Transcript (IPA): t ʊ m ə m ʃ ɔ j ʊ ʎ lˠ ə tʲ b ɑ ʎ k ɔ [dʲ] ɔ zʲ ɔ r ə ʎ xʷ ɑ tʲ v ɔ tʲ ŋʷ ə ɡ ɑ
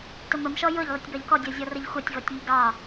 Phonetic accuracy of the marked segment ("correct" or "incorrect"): correct